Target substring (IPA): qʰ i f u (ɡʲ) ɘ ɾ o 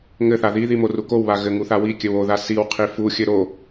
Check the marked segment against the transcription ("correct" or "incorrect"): incorrect